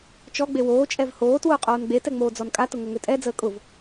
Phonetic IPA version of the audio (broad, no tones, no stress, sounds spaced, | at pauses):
t͡ʃ ɔ ɡ͡b e w oː t͡ʃʼ ɛ v h oː t w ʊː qʼ oː n ɡ͡b e t ɛ ŋ͡m oː d͡z ɔ n kʼ a t ʊ ŋ o ŋ ø tʼ ɛ d͡z əː kʼ ʊ v